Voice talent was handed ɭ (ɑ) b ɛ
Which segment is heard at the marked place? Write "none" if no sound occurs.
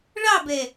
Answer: ɑ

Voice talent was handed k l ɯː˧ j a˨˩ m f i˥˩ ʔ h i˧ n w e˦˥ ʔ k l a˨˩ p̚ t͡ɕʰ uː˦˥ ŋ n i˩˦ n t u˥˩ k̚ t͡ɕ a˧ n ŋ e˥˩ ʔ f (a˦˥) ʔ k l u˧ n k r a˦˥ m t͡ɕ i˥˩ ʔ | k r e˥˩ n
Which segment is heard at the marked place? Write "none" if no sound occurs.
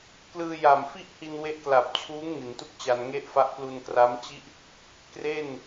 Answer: a˦˥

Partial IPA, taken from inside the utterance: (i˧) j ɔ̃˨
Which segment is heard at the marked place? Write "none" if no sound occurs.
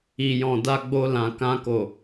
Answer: i˨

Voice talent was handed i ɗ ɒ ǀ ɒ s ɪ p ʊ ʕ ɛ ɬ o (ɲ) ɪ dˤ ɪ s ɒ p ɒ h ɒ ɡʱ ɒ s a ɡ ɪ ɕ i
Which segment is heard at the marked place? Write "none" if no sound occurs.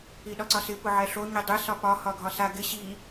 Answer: ɲ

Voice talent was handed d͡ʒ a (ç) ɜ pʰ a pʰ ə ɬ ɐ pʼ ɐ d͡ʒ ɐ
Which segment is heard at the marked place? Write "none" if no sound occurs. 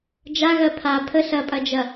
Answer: ɣ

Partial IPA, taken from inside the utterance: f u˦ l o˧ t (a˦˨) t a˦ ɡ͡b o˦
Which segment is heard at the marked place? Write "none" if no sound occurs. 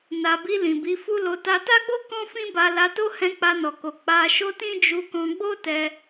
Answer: a˧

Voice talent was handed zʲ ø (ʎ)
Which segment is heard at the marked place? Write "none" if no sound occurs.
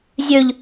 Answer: ʎ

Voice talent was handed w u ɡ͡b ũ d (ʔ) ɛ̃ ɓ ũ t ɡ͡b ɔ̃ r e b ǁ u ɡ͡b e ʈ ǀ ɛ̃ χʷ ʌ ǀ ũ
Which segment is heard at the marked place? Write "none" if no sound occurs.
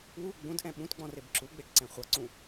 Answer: ʔ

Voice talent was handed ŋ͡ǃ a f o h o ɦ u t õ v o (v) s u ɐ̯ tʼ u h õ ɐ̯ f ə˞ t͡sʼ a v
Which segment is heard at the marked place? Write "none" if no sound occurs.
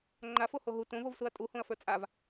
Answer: v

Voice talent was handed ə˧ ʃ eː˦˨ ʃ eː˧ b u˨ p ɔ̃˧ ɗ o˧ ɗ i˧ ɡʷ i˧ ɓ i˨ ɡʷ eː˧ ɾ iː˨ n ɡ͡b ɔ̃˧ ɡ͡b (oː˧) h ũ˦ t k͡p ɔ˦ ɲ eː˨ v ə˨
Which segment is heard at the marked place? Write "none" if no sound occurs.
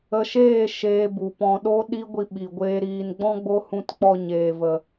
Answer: o˧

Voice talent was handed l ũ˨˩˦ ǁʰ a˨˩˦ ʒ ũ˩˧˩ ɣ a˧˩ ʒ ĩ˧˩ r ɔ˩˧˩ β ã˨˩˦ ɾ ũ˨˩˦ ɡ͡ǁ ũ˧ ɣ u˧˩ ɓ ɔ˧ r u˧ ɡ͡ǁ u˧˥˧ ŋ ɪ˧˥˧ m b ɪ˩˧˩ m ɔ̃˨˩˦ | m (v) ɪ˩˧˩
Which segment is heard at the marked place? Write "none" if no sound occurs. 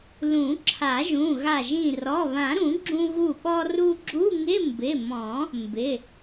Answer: b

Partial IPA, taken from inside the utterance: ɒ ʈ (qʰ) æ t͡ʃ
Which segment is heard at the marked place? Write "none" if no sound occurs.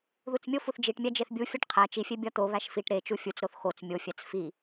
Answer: qʰ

